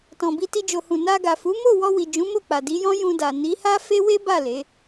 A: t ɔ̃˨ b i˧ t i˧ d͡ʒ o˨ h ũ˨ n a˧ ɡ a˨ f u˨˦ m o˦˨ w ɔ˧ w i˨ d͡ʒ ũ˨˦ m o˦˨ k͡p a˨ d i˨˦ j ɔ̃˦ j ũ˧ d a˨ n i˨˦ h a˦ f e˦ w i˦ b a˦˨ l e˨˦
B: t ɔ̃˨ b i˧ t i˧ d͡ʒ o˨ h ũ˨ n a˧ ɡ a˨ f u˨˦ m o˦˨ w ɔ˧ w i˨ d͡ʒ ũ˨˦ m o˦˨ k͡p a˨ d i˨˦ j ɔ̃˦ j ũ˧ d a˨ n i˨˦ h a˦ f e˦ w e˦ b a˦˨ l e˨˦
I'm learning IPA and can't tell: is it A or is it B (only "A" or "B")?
B